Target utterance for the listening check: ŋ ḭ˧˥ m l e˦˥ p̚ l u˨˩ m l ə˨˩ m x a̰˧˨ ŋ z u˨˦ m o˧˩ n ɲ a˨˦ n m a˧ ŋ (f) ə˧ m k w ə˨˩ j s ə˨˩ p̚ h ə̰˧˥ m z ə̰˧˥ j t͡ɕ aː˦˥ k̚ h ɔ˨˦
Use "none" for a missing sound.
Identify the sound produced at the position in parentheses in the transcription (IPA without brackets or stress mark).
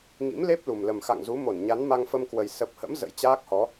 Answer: f